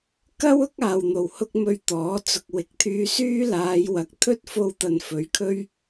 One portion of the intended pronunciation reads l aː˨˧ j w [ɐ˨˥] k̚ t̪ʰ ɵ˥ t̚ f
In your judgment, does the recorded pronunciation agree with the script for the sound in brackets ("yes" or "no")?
yes